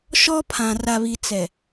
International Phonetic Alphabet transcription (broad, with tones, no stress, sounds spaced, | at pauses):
ʃ ɔ˦ pʰ ã˨ r a˨ β i˨ t͡s ɛ˨